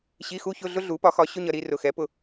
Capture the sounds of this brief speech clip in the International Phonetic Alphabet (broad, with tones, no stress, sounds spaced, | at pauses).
ɕ i˧˥˧ x u˥ ç ʊ˧˥˧ ɮ ʊ˥ ɮ u˩˥ p ɒ˩˥ x ɒ˩˥ ɕ ʊ˧˥˧ ɲ ʌ˩˧˩ ɾ i˥˧ r ʊ˩˧˩ x ɛ˩˥ p ʊ˩˧˩